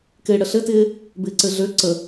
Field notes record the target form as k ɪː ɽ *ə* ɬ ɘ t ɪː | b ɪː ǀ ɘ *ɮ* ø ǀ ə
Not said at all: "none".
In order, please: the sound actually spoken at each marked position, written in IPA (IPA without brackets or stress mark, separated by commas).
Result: ə, ɮ